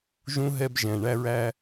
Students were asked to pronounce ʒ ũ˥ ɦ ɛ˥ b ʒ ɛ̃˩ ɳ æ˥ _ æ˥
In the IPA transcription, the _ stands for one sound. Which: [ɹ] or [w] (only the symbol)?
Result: ɹ